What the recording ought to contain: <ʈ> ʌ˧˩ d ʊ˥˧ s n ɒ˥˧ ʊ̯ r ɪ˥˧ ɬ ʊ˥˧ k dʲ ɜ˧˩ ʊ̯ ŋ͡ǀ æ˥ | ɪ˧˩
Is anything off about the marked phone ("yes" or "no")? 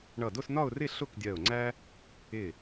yes